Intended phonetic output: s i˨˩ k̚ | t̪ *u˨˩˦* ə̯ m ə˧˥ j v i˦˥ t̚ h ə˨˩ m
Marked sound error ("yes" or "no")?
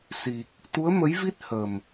yes